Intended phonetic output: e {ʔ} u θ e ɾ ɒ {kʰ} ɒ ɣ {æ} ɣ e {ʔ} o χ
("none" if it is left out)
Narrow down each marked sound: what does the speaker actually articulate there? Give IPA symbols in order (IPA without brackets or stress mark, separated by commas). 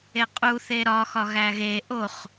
qʼ, x, æ, ʔ